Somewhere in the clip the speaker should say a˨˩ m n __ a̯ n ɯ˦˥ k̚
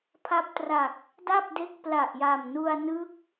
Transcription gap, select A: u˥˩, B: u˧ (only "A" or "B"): B